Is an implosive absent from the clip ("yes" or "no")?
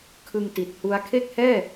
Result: yes